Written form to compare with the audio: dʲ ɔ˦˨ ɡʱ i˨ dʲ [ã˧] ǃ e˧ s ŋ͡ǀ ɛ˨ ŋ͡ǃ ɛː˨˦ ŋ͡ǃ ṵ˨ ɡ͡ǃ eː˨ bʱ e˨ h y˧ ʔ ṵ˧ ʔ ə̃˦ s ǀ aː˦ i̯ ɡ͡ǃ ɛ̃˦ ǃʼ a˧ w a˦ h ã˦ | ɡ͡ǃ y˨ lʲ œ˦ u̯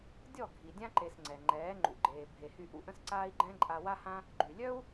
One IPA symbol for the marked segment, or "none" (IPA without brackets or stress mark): ã˦